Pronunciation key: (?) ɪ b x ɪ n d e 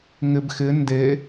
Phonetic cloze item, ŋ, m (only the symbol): ŋ